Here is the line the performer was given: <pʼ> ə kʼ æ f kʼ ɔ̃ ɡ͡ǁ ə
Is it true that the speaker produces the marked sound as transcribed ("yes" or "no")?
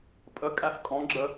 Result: yes